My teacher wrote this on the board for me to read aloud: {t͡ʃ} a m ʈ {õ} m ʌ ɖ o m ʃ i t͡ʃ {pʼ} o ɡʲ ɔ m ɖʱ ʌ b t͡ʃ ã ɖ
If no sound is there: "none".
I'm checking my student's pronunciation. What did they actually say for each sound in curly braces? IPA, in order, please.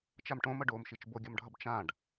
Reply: t͡ʃ, õ, b

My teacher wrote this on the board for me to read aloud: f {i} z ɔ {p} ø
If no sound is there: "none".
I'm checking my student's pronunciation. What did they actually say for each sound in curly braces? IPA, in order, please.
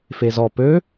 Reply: e, p

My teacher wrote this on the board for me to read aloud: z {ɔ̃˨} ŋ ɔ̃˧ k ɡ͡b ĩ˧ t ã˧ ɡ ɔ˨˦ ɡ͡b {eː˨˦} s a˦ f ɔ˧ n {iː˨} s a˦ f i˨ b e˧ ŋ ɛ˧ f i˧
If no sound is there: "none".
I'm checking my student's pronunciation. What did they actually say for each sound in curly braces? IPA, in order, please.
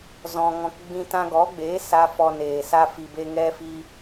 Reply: ɔ̃˧, eː˨˦, eː˨

